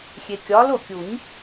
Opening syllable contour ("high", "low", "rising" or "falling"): low